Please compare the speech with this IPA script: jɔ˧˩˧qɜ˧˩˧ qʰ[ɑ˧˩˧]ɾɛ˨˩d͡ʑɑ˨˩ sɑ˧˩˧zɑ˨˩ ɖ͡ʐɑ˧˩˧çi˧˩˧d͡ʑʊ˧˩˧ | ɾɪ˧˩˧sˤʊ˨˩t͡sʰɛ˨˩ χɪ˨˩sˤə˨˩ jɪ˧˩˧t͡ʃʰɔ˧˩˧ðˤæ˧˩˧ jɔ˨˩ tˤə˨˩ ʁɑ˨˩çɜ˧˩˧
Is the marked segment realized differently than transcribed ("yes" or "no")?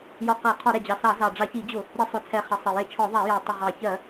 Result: yes